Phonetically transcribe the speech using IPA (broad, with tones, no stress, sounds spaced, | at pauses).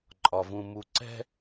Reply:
ǃʼ ɒ˨ v ũ˨ m u˨ ǀ ɛ̤˦